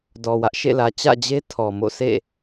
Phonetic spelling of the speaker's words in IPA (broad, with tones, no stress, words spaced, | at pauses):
dɔ˨wä˦ʔʃḛ˦˨lä˨ t͡ɕä̰˦˨d͡ʑe˦ tʰɔ˨mo̰˦˨sʰḛ˦˨